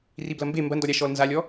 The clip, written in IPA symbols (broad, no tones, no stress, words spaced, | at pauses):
riblɐmbe mbɐndɔɾʲa ʃɔlnzalʲɔ